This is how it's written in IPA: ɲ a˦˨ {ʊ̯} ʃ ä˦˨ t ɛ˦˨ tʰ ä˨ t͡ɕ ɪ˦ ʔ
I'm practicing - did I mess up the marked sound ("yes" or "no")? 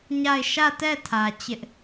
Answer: yes